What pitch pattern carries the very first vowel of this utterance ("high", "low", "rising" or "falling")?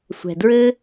low